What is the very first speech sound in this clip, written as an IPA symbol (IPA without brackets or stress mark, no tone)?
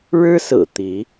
ɻ